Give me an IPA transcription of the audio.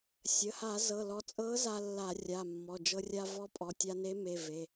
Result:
sʲ ə˩˧˩ h a˧˩˧ z ɤ˩˧˩ l ɔ˧ t͡sʼ ɤ˧˥ z a˧ lː a˧˩˧ rʲ a˩˧˩ mː ɔ˩˧˩ d͡ʒ ɤ˧ rʲ a˧ v ɔ˧˥ pʼ ɔ˩˧˩ tʲ a˧ n e˧˥ m e˩˧˩ v e˩˧˩

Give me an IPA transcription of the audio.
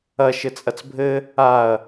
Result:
ɐ ʃ ɘ t͡sʼ ɐ t͡s bʱ ɘ | a ɐ̯

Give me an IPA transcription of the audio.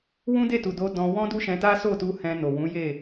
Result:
w ũ˦ d e˦˨ t u˨ d o˧ d ɔ̃˧ w ɔ̃˦ d u˦ ʃ ɛ̃˧ t a˦ s o˦˨ t u˧ h ɛ̃˧ n o˨ w ũ˨˦ j e˦˨

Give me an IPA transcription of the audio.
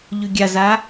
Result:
ʎ ʉ ɡʲ a z a

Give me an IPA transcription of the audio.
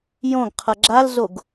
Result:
j õ ɡ qʰ ʌ ɡ͡ǁ a l z o ɡ

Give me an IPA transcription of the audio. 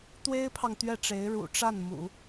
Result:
t̪ w e˥ ɪ̯ pʰ ɑ˨ ŋ t̪ ɥ ɛ˥˩ ʈ͡ʂ e˧˥ ɪ̯ ɻ ṵ˨˩ ʈ͡ʂ a˥˩ n m ṵ˨˩˦

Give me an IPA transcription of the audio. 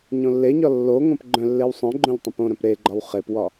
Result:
ɲ õ lː e ɲ ɒ lː o ŋ õ p ɡ͡ǃ œ̃ lː e w sˤ œ̃ ɡ͡ǃ õ ʎ tˤ œ̃ p õ ɾ œ̃ p ɾ e ɡ͡ǃ ɒ w χ e p w ɒ

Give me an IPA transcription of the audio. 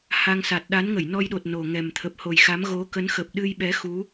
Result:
h a˧ ŋ s a˨˩ t̚ ɗ a˨˦ n ŋ ə˧˩ j n ɔ˧ j ɗ o˨˩ t̚ n o˨˩ ŋ ɛ˨˩ m t̪ʰ ə˨˩ p̚ h o˨˩ j x a˨˦ m ɣ o˨˦ k ə˨˦ n x ə˨˩ p̚ ɗ ɨ˧ j ɓ ɛ˨˦ x u˨˦

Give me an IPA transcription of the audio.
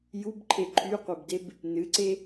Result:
j u b ǃʰ e ǃʰ y qʷ e b d e b | n ɨ ǀ e

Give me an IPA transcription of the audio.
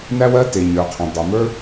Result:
n æ˥ w ɜ˥ t e˩ ɲ ə˞˩ qʰ ɛ̃˩ dˤ u˩ m ə˞˥

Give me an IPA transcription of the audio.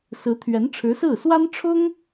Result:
s ɹ̩˧˥ t̪ʰ ɥ ɛ˧˥ n ʈ͡ʂʰ ɻ̩˧˥ s ɹ̩˥˩ s w a˥ n ʈ͡ʂʰ ʊ˥ ŋ

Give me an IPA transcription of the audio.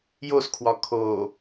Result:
j o s kʰ w ɒ kʰ o

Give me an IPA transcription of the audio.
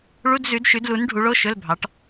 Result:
ɭ u˧˥˧ d z ʉ˨˥ d ʃ ʉ˨˥ d l u˨˥ n ɖʱ u˨˥ ɭ o˧˥˧ ʃ ɵ˧˥˧ l bʱ ɑ˨˥ ʈ

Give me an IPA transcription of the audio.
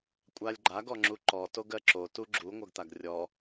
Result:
kʷʼ a lʲ ɡ͡ǃ a ɡ ɔ ŋ͡ǁ u ǃ ɔ t o ɡ ɜ ǁ o t u ɡ͡ǁ u ŋʷ ɜ ɡ t̪ a ɡ rʲ ɔ

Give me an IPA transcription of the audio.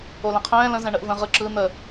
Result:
o l ɛ̃ qʰ ɛ̃ː l ə̃ z ɛ̃ ɳ ə ʔ v ə̃ ʁ ɯ ǁ ɯ n̪ ə

